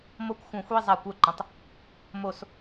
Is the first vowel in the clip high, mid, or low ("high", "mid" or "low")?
mid